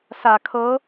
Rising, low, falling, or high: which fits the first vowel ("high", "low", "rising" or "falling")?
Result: low